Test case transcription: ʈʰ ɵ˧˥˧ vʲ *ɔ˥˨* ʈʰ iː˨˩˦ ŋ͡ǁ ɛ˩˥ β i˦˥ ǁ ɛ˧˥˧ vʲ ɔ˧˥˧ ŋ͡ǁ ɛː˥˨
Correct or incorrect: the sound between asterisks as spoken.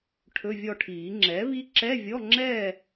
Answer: correct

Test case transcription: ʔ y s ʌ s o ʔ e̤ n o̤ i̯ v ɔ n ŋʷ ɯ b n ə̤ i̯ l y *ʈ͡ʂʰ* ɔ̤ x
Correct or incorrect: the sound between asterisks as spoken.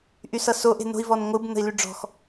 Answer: incorrect: ɖ͡ʐ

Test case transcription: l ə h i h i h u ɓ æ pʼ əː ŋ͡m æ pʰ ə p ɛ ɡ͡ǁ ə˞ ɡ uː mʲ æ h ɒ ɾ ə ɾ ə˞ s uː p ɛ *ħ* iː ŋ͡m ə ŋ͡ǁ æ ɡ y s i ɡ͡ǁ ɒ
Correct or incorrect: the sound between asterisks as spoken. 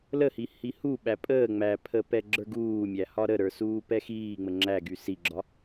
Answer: incorrect: x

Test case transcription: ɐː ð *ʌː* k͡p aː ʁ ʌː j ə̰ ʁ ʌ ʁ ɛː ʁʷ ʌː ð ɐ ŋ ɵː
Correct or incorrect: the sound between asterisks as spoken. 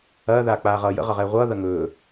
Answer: incorrect: aː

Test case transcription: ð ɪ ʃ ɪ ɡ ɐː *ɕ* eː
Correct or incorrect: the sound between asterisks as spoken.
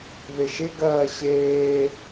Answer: correct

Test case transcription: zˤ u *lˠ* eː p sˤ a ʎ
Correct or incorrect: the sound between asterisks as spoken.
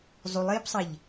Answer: correct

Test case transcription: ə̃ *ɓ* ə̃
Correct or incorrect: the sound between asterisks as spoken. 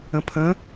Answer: incorrect: pʰ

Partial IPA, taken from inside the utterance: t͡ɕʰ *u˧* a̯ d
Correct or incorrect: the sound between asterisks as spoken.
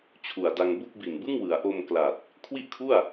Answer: incorrect: u˨˩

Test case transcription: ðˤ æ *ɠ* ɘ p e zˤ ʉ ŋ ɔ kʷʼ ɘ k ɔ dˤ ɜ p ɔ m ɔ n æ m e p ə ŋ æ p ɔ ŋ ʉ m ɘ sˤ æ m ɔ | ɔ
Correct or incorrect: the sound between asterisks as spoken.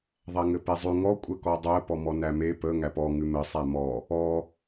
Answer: incorrect: ŋ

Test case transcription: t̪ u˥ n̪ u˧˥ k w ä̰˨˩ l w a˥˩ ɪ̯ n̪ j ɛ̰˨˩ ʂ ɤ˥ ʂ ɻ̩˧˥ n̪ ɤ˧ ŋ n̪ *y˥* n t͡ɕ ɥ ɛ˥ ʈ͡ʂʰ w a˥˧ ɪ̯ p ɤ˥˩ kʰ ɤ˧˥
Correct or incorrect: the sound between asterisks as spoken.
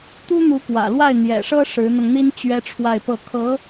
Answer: incorrect: i˥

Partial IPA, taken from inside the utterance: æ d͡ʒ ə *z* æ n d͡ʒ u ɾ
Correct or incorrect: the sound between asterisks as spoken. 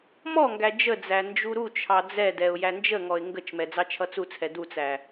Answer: incorrect: d͡z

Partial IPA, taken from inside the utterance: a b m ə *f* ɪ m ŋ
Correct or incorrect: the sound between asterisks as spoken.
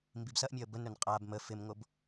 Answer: correct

